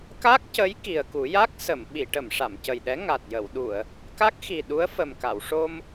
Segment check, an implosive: present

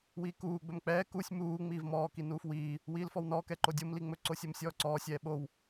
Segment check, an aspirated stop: absent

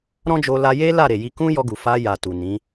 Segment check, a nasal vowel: present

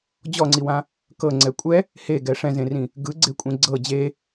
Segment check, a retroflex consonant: present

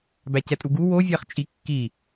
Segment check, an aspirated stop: absent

